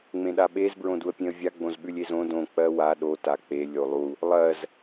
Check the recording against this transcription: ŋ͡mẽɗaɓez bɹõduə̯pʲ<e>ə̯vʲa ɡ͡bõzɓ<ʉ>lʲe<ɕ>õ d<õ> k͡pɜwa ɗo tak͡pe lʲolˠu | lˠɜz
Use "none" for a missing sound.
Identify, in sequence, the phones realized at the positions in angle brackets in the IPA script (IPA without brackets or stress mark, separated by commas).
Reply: ẽ, ʉ, z, õ